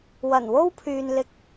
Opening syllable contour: low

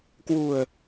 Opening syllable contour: low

